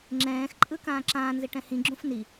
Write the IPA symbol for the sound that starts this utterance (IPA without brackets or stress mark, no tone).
ŋ͡ǁ